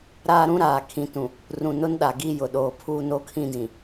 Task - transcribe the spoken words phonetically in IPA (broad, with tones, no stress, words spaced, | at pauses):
ɾaː˦ɾũ˦ ɾaː˨ kʰĩ˨˦tũ˨ | rũ˨nʊ˦nɗa˨ɡi˦˨ jʊ˨ɗoː˨pʰuː˦ no˦ kʰĩ˦dĩ˨